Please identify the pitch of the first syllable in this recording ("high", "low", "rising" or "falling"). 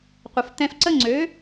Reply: low